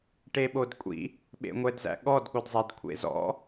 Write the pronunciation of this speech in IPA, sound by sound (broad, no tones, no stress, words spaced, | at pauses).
ʈeɓodkʷʼḭ | ɓḛŋʷɛdzæ̰ɠɔd ɠodzˤɛd kʷʰḛzɔ̰